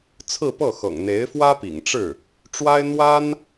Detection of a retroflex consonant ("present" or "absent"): present